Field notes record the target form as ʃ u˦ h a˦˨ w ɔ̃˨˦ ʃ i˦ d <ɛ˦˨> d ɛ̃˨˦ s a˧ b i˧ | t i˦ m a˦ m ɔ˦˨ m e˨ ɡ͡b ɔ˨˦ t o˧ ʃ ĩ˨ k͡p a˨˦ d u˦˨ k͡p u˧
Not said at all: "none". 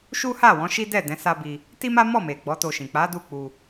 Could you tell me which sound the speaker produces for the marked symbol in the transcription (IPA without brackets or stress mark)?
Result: ɛ˦˨